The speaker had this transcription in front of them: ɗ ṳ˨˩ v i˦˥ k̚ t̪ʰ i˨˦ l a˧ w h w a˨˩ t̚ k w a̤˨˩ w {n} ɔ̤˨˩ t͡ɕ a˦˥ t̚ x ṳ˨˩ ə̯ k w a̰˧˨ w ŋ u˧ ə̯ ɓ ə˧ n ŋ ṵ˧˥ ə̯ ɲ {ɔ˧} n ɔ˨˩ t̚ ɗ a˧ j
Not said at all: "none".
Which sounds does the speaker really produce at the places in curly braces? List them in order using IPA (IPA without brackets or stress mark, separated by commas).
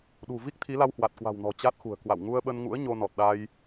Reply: n, o˧